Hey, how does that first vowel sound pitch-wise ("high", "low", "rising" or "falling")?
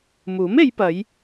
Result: rising